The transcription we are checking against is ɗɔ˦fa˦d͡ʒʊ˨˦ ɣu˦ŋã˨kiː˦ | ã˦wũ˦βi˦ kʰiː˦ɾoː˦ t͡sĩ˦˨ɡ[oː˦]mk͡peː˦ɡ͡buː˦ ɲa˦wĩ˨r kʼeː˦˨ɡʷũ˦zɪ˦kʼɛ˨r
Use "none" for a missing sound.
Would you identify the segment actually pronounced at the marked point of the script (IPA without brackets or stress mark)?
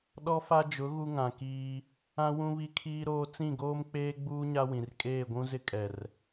oː˦